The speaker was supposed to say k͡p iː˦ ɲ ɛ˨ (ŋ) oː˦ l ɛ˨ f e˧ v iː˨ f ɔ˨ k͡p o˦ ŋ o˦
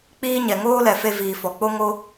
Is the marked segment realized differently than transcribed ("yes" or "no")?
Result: no